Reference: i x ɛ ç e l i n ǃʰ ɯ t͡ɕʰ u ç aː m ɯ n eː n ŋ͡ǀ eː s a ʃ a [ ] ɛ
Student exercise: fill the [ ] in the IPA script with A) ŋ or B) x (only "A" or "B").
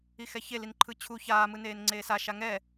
A